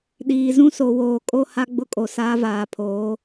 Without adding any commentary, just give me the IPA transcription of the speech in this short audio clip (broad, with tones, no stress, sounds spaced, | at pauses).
ɗ iː˨ z ũ˦ s o˨ w oː˨ kʼ o˦ h a˦ ɡ͡b ʊ˦ kʼ o˨ s aː˦ v aː˨ pʰ oː˨˦